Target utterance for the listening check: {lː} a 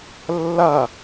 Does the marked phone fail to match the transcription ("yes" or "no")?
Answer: no